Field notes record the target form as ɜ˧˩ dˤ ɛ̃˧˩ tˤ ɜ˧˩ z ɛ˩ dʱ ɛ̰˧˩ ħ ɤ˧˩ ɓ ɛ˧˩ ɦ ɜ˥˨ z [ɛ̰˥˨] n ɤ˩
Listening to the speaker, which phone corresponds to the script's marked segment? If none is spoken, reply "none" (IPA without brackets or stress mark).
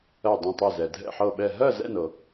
ɛ̰˥˨